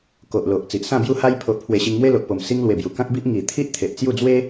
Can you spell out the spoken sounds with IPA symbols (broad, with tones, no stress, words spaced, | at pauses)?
ko˨ʔlo˨ʔ t͡si˨ʔsã˥˧bju˦ ha˧j pʰo˨ʔpʰwe˨˩ ɕi˧ŋmwe˦lo˨ʔpo˨˩m si˧ŋlwe˨˩ bju˨˩kã˦k̚bi˦ʔ ŋi˨˩t̪ʰi˦ʔ t̪ʰe˨ʔt͡sju˥˧ d͡zwe˦